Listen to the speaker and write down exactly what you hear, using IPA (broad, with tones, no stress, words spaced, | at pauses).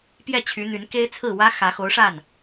pjɛ˥˩t͡ɕʰy˧˥n̪y˧˥nke˥ɪ̯ t͡sʰɹ̩˥˩wä˥ xä˧˥xo˧˥ʊ̯ʂa˥˩n